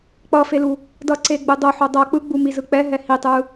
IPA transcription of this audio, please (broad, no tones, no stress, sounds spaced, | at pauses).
k͡p ʌ f e l u | d ʌ ǀ e ɡ͡b ɯ dˤ o ħ o dˤ ʌ k͡p ɯ ɡ͡b u m i z ɯ k͡p ɛ ɦ ɛ h i tˤ ɯ